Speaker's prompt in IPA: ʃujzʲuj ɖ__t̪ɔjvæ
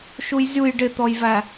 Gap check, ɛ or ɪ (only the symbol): ɪ